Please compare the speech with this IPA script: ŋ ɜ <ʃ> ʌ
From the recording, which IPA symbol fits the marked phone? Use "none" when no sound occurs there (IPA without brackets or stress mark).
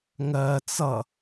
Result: t͡s